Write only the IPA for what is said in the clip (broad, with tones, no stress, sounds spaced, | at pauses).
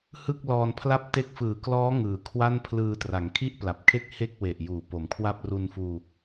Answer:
h ɯ˥˩ k̚ l ɔː˧ n pʰ l a˥˩ p̚ t e˦˥ k̚ f ɯː˨˩ k l ɔː˦˥ ŋ ɯː˩˦ kʰ w a˥˩ n pʰ l ɯː˧ t r a˩˦ ŋ kʰ i˥˩ ʔ p l a˨˩ p̚ kʰ e˥˩ k̚ h e˥˩ k̚ w e˨˩ ʔ j uː˨˩ p o˩˦ m kʰ w a˥˩ p̚ r u˧ n f uː˧